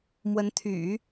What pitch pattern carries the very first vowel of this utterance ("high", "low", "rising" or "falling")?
rising